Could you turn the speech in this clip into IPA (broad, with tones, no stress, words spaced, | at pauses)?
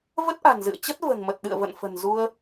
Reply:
və˦˥t̚ʔa̤˨˩nzɨ̰˧˨ə̯t͡ɕə˦˥t̚ və̤˨˩nmə˨˩t̚ɗɨ̰˧˨ə̯və̰˧˨n fə̤˨˩nzu˧ə̯